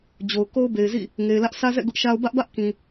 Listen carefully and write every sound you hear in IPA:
d͡ʑ o˨ ʊ̯ k o˦ ʊ̯ b e˨ ɪ̯ z ḭ˦˨ | ŋ e˨ ɪ̯ l ä˦ ʔ s ä˦ z ɛ̰˦˨ ɡ ʊ˦ ʔ ʃ a˦ ʊ̯ b ä˦ ʔ b ä˦ ʔ k ĩ˨

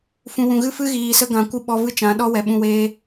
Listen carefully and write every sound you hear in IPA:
f ũ˨ w ũ˨ ɣ ɨ˦˨ f ɨ˦ ɣ iː˨ s ə˧ ɡ ã˨ kʷ ɨ˧ ɓ ɔ˧ v ɨ˦ t͡ʃ ã˨˦ ɗ ɔ˦ w ɛ˨ ɓ ũ˧ w eː˦

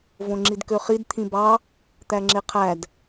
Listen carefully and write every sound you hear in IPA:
v õ ŋ͡ǁ i d k ø χ i d t̪ʰ ĩ b ɑ | t̪ æ ŋ͡ǁ e qʰ æ d

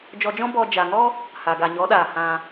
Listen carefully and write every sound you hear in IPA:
d͡ʒ ɔ˧ d͡ʒ ɔ̃˦ b ɔ˧ d͡ʒ a˨ ŋ ɔ˦ | h a˨ ɡ a˨ ɲ ɔ˨˦ ɗ aː˨ h ã˧

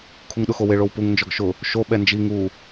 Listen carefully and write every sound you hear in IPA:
kʰ u ŋ ɗ ʊ x o w ɪ ɭ o w p u ŋ n d͡ʒ ɔ ɡ ʃ ʊ | ʃ o ɓ ɛ n d͡ʒ i ŋ u

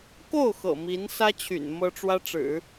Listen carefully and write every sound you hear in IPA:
k o˥˩ ʊ̯ x ɤ̰˨˩ m i˧˥ n s ä˥ t͡ɕʰ y̰˨˩ n m ɤ˥ ʈ͡ʂ w ä˥ ʈ͡ʂ ɻ̩˨˩˦

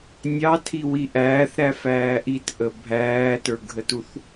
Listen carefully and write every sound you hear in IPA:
nʲ ɑ tʰ i w i ʔ æː θ ɾ æ f æː ʔ i t ʔ ə bʱ æː t ə˞ ɡʱ ə t u θ

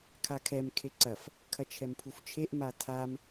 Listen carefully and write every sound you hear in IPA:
kʰ a kʰ ɛ m kʰ e ǀ ɐ f | kʰ ɐ t͡ʃʰ ɛ m pʰ u f t͡ʃʰ e ʔ m a tʰ a m

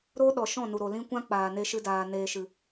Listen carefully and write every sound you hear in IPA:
ɾ o˦ ɗ ɔ˨ ʃ ɔ̃˦˨ n u˨ ɾ o˨ l ĩ˦ kʷ ã˦ k͡p aː˨ n e˦ ʃ ɨ˦ d aː˧ n eː˧ ʃ ɨ˨

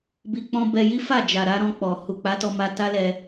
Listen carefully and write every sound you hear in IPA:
b i˧ k͡p ɔ̃˦ b ɛ˧ j i˦ f a˦˨ d͡ʒ a˨ ɾ a˨˦ ɾ ɔ̃˧ k͡p ɔ˨ h u˨ k͡p a˨˦ t ɔ˧ m a˧ t a˦ l ɛ˧

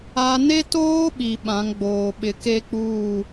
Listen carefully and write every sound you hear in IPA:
a˦ n e˦ t oː˦ ɓ i˨ ɓ ã˨˦ ŋ ɡ͡b oː˨ ɓ ɪ˨ k e˦ k͡p uː˦˨

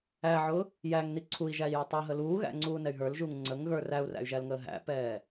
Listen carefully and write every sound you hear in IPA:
æ ʕ ʊ | j æ ŋ n i ǀʰ u i̯ ʒ æ i̯ j ʊ tˤ ʌ ɦ ə l uː ɣ æ̰ ŋ͡ǀ uː n ɛ y̯ ɦ ə˞ l ʒ u ŋ ŋ͡ǀ ə ŋ ɣ ə˞ r æ u̯ r æ̰ y̯ ʒ æ l ŋ əː ɦ æ̰ p ɛː

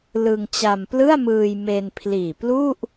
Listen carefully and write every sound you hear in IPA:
l ɯ˧ ŋ t͡ɕ a˧ m p l ɯ˥˩ a̯ m ɯː˧ j m e˧ n pʰ l iː˨˩ p l u˥˩ ʔ

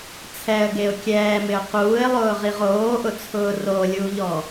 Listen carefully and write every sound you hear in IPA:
t͡sʰ ɛ ə̯ ɡ e ʊ̯ kʲ ɛː m ɪ ʊ̯ q uː ɪ̯ lˠ ʊː ʁ i ʁ oː ʔ ʊ t͡sʰ ʊː r o lʲ uː ʎ ɔ

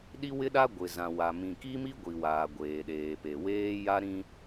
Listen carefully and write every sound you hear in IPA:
ɗ i˦ w ɪ˦ ɗ a˦ ɡʷ ɪ˨ z ã˨ w a˨ m ĩ˨ k i˦ m i˦ ɡʷ i˨ w aː˨ ɡʷ eː˨ ɗ eː˨ p e˨ w eː˦ j a˦ ɾ ĩ˦

